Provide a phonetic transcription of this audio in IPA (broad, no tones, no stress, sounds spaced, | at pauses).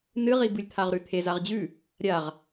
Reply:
n ɨ ʁ i b ɨ lʲ t̪ʰ a ʁ ɾ ʉ t̪ʰ e z a ʁ d͡ʑ ʉ | ɾʲ a ʁ